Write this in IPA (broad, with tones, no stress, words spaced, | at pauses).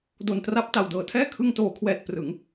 do˨˩n tra˦˥p̚ ta˨˩wdɤː˨˩tʰɛː˥˩ kʰɯ˧ŋtoː˩˦kʰwɛː˨˩t̚ prɯ˩˦ŋ